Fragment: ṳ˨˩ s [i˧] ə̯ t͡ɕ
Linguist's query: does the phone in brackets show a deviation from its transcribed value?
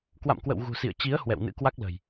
yes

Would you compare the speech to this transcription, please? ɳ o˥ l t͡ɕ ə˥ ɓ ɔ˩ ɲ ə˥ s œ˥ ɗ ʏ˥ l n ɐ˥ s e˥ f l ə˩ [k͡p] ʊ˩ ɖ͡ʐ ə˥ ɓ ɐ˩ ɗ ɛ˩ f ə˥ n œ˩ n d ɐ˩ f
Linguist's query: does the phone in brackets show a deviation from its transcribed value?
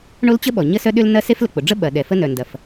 no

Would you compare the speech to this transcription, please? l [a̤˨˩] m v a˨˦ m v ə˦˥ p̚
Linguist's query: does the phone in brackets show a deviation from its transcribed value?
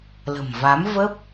yes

